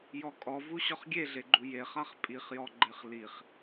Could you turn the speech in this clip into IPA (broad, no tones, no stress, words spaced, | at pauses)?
jɔkʼɔvu ɕɔχɡʲeɮeɡ͡ǃu jeχaχ pʼiχjɔɡ͡ǃeχ liχ